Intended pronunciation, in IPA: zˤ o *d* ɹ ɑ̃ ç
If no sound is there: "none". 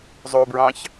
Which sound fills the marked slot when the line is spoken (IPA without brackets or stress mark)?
b